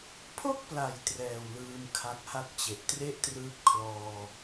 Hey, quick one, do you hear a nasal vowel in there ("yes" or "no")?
no